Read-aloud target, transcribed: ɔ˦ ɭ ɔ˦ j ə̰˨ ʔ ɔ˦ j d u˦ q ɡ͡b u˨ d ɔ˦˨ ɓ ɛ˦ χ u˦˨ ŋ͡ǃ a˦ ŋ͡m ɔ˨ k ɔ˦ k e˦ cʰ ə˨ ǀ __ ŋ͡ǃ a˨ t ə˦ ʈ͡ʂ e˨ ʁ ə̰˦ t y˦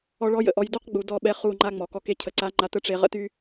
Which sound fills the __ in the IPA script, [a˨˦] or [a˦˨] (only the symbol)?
a˨˦